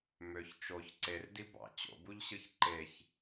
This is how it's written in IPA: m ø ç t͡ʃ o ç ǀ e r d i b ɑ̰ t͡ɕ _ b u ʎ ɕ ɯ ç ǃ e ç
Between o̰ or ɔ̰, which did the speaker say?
o̰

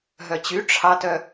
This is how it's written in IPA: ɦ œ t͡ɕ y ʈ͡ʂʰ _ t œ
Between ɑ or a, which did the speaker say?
ɑ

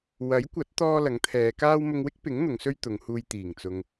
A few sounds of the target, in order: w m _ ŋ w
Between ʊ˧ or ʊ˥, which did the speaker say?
ʊ˧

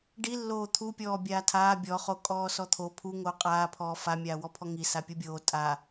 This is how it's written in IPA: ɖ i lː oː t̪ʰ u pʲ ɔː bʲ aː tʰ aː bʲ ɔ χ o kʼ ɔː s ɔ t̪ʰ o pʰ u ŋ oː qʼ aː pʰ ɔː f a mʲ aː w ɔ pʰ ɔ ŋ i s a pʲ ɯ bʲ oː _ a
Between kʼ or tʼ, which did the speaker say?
tʼ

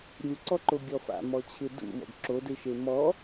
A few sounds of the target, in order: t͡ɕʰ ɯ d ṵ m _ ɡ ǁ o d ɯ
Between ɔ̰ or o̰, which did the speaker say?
ɔ̰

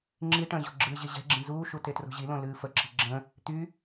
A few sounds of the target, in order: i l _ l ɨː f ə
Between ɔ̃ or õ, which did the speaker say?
õ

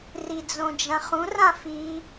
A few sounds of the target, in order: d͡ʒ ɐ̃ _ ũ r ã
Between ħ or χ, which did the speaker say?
χ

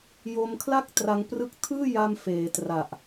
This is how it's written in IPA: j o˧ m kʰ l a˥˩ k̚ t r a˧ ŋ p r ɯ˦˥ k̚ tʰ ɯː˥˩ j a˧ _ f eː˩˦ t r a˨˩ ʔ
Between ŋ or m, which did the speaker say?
m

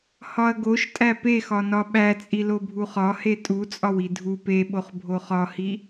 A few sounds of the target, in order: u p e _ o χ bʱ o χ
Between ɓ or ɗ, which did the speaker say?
ɓ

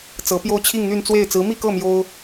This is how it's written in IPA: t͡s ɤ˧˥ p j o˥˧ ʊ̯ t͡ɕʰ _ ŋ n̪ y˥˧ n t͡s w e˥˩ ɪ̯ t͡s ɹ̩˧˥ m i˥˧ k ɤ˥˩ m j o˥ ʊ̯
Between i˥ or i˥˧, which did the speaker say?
i˥˧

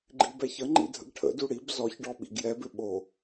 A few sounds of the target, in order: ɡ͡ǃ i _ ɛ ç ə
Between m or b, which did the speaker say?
b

